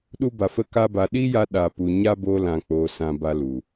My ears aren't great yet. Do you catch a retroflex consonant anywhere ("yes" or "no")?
no